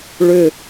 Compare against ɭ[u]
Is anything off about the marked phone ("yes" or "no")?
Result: yes